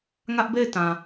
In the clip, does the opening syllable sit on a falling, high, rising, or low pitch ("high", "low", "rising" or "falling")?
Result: high